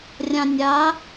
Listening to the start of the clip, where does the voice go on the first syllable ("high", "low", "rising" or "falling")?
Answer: low